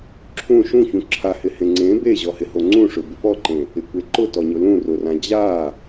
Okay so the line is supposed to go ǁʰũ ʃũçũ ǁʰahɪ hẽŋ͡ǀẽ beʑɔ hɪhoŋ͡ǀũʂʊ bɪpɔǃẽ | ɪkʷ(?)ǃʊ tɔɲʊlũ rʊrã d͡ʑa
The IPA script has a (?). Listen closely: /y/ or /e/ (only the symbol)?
e